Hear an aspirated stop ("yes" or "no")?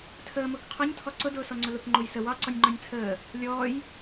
yes